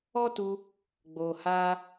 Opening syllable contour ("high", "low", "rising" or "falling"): high